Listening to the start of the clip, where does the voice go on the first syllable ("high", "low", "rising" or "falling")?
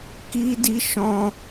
high